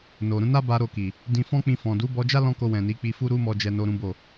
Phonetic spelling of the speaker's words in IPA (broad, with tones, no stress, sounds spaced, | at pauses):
n o˨ ɾ ũ˧ n a˦ b a˧ ɾ o˧ k i˨ | d ĩ˧ f ɔ̃˦ k͡p ĩ˧ f ɔ̃˨ d u˨˦ b ɔ˧ d͡ʒ a˦ l ɔ̃˦ k o˧ w ɛ̃˨ n i˨˦ k͡p i˧ f u˦ ɾ u˦ m ɔ˧ d͡ʒ ɛ˦ n o˦ ɾ ũ˦ b o˦˨